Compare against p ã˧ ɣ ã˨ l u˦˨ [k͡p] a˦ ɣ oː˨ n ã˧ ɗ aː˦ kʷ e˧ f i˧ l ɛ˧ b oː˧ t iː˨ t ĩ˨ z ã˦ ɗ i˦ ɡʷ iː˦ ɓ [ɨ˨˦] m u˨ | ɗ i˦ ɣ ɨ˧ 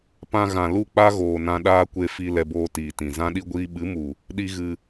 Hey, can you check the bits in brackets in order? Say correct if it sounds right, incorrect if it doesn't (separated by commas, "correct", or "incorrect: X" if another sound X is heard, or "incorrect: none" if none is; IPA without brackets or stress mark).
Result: correct, correct